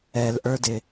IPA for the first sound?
ɛ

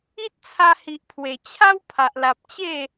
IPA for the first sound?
i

